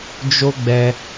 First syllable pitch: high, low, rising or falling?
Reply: high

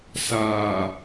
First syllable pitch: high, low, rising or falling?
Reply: low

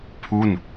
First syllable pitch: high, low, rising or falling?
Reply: falling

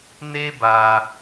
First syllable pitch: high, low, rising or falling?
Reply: high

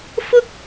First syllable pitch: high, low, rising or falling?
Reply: high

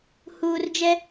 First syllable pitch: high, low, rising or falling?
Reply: low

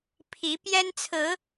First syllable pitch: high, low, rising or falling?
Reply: rising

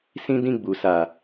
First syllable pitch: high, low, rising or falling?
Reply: high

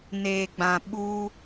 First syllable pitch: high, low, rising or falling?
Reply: low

